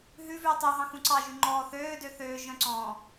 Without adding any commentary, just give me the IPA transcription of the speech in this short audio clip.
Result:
ɦ ʉ v ʉː tˤ u ɦ ɑ̃ x ũ ǀ ɑ ʒ y ŋ͡ǃ ɔː θ øː d ø θ øː ʒ œ̃ ǀ ɔ̃

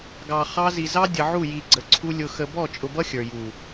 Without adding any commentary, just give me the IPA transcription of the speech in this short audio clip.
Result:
ɡ ɑ˨ χ ɑ˦ z i˨ z ɑ˦ dʲ ə˨ ʕ u˦˨ j i˨ ɡ͡ǀ ə˨ ǀʰ u˦ lʲ ʊ˨ x ə˨ b ɔ˦˨ t͡ʃʼ ʊ˨ b ʌ˦ xʲ ə˞˨ j u˨

